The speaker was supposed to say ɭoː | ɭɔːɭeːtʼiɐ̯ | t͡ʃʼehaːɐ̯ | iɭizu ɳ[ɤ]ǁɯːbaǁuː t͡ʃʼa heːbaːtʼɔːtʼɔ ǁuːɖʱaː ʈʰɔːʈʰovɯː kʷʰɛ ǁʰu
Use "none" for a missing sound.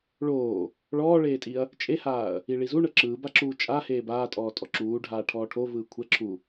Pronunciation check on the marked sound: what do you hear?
ɤ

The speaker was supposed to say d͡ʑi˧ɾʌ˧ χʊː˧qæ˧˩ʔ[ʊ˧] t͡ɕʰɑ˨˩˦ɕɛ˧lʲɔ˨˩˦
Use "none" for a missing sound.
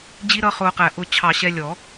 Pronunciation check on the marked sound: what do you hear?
ʊ˧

